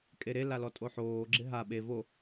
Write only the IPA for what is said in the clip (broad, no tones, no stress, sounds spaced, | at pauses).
kʼ e ɾ e l a l ɔ tʼ o ħ oː ɡ͡ǁ ɪ ɦ a ɓ e v o